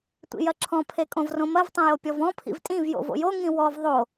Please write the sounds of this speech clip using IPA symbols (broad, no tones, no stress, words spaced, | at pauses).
tʷḭjɐǁʰɔ̃ pʰekʼõvrõmɐv tˤõjopʲɔvɔ̃ pʰḭvtʼĩv jo̰vo̰jo ŋĩwɔv ðˤo